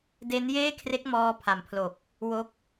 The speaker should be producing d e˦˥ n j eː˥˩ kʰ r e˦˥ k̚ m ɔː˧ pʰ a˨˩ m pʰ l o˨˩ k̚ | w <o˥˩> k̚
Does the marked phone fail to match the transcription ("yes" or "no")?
yes